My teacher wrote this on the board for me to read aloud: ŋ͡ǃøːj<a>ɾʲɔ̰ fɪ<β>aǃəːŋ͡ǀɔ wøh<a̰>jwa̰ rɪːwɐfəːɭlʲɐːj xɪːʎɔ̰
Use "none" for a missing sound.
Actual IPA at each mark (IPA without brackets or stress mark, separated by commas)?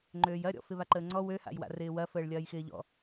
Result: ɐ, β, a̰